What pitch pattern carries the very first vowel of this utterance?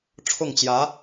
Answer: falling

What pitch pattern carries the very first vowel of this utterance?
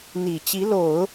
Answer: low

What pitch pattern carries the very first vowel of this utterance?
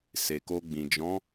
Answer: low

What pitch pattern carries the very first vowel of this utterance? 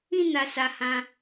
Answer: high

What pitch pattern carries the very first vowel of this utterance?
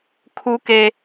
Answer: high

